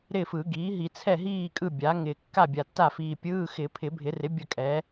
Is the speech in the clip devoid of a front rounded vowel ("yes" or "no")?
yes